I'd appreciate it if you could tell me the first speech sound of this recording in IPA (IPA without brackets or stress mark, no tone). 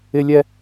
ɪ